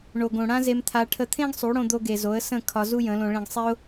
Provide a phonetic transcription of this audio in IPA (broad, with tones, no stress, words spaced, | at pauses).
ɳo˨ɡ õ˨ ɽã˦ze˧mt̪ʰa˧ ʈʰə˧t̪ʰẽ˦ɡsˤu˨˦ɽõ˧ d̪o˧ɡe˨zo˨˦ə̯ sə̃˦˨ kʰɒ˧ zu˦jə̃˨˦lõ˧ ɭẽ˧ɡ sˤe˦ʊ̯